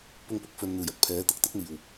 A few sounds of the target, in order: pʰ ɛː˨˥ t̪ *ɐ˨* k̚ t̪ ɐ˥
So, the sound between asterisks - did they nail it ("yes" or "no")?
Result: yes